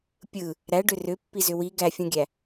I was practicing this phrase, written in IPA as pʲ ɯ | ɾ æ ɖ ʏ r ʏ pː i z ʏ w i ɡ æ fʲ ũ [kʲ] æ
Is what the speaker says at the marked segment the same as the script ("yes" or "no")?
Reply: no